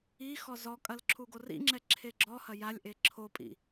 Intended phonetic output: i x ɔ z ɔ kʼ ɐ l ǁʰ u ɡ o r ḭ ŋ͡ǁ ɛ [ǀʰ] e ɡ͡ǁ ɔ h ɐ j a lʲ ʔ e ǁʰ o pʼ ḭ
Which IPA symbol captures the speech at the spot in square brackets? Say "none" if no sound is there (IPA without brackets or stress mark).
ǁʰ